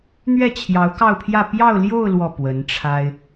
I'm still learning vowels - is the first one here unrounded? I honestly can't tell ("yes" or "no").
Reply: yes